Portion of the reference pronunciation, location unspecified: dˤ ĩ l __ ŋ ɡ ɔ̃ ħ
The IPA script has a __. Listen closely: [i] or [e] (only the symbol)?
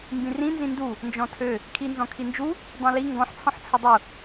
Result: i